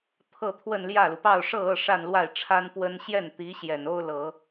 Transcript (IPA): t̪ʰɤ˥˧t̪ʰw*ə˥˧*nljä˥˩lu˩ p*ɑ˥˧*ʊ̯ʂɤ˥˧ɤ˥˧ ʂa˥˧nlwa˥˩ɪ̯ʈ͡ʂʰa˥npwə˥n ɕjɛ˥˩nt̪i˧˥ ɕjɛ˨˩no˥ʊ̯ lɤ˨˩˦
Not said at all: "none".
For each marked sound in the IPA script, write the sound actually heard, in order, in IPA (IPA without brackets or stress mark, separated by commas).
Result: ə˥˧, ɑ˥˧